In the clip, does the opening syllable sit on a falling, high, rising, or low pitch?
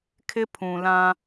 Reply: high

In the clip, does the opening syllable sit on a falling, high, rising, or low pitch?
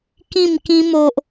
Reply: falling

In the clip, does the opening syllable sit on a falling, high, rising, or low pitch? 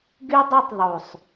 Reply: high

